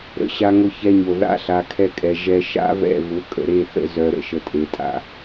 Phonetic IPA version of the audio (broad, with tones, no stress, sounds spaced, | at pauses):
ɾ ə̰˧ ɕ a˧ ŋ ʊ˧ ç ɛ˧ ɲ o˨ ð a̰˦ ɬ a˧ kʰ ɛ˧ kʼ ɛ˨ ʒ ɛ˧ ʃ a̰˦ v ɛ̰˦˨ v ʊ˨˦ kʼ ə̰˨ ɾ e˦˨ θ ə̰˦ z œ˨ ɾ ə̰˧ ʃ ə˨ tʼ e˨ tʼ a̰˨